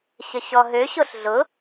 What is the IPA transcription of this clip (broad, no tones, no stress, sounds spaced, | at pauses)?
ɕ ə ɕ ɔ ɦ ø ɕ o ɬ ɮ ʊ